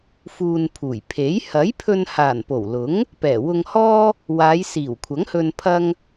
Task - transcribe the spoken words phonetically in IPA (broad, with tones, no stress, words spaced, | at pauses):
fuː˧npʰuː˨˩j pʰe˨˥j hɐ˨˥jpʰɵ˧nhaː˨˩n po˨˩w lʊ˨˥ŋ | pɛː˨˩wʊ˧ŋhɔː˥ | waː˨˧jsiː˨˩wkʷʰɐ˨˥ŋhɵ˧n pʰɐ˥ŋ